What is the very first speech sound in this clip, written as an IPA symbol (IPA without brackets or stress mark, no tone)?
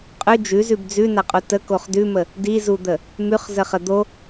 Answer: qʼ